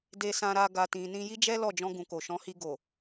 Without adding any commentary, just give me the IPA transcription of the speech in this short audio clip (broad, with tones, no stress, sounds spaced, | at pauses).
d e˧ s ã˧ ɾ a˧ ɡ a˨ t ĩ˨ n ĩ˧ j i˦ d͡ʒ ɛ˦ l ɔ˦˨ d͡ʒ ɔ̃˧ ɡ ũ˨ k o˨ ʃ ɔ̃˨˦ h i˧ ɡ o˨